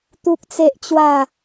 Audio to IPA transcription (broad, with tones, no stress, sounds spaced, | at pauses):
t̪ u˦ k̚ t͡s e˦ ʔ t͡ɕ w a˥˧